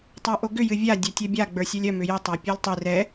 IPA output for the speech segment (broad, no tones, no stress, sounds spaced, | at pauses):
tˤ a ʔ o ɡ ʏ j ɨ vʲ a dʲ œ tʲ œ bʲ a ɡ͡b ə˞ sʲ œ lʲ œ m ʏ j ə tˤ a pʲ œ lʲ tˤ ɨ r ɛ